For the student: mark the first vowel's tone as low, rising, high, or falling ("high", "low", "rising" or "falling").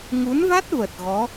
rising